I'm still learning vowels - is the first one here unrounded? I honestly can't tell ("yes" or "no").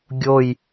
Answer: no